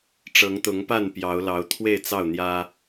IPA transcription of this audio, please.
ʈ͡ʂ ɤ˨˦ ŋ t̪ ʊ˨˦ ŋ p a˥˨ n p j ɑ˨˦ ʊ̯ l ɑ˨˦ ʊ̯ t̪ʰ w e˥˨ ɪ̯ t͡s ɑ˥˨ ʊ̯ n̪ j ä˦

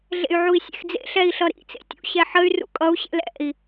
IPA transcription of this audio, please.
ɮ ḛ y̯ ʕ u i̯ sʲ ḛ x d͡z ḛ ɬ ɛ i̯ ɬ ʌ ɾ ḭ t͡s ḛ tʲ ṵ ɕ ɛ ħ ə y̯ r ṵ kʼ ʌ u̯ ɕ ɛ̰ l ɛ̰ i̯

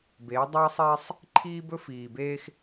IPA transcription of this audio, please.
b eː˨˦ dˤ ɐː˦ sˤ eː˦ sˤ | ǃʰ iː˦ b ɵ˦ f iː˨ b eː˦ x

